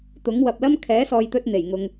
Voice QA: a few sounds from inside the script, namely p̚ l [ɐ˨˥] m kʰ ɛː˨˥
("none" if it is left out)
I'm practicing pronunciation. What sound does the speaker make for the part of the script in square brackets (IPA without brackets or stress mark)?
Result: ɐ˥